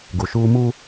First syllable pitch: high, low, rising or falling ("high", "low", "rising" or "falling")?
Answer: low